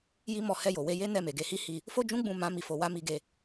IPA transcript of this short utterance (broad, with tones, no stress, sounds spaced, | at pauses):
j i˦ m ɔ˧ h ɛ˧ j o˨ w e˧ j e˦ n ɛ˦˨ m e˨ ɡ e˧ h i˦ h i˦˨ | f o˦ d͡ʒ ũ˦ ɡ͡b ũ˦˨ m ã˨˦ m i˧ f o˧ w a˦ m i˧ ɡ e˧